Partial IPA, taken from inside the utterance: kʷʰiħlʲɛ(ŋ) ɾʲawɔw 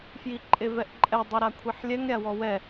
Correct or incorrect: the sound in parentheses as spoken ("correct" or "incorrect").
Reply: correct